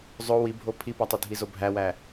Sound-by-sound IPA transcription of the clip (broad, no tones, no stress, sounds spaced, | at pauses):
zˤ o w i bʱ o pʰ i p ɒ tˤ o dʱ i z o bʱ æ w æ